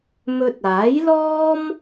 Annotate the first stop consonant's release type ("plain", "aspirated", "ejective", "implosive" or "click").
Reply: plain